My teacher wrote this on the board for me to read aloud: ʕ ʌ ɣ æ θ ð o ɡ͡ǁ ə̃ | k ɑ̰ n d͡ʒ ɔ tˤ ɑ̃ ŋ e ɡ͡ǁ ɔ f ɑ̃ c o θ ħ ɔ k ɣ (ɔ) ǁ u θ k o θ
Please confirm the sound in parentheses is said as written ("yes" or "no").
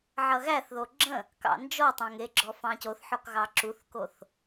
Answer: no